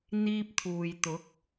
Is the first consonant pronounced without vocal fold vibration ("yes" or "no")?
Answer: no